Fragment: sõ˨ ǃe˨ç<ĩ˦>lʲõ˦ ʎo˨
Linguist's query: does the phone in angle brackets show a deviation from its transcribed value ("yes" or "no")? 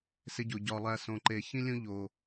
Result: no